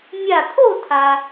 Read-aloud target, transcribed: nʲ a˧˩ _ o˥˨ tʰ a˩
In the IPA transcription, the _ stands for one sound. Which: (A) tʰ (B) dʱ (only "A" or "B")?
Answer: A